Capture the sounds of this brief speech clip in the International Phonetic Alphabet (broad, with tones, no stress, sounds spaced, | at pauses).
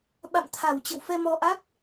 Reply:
ɓ a̰˧˨ m t̪ʰ a˨˩ w t͡ɕ ə̰˧˨ w f ɛ˧ m ɔ˧ ʔ a˦˥ k̚